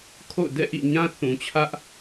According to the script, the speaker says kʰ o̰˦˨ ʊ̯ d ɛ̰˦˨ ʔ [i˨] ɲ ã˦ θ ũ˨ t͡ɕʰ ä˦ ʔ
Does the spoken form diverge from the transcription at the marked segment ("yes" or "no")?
yes